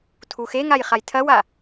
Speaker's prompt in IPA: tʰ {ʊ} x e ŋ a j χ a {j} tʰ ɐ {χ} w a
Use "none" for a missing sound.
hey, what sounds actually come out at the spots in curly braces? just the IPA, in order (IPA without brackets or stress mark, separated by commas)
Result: u, j, none